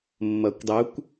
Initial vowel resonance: oral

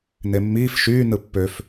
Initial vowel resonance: oral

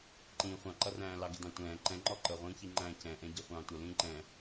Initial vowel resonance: nasal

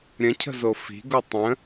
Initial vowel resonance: nasal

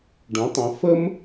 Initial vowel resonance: nasal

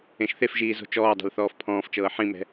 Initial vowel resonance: nasal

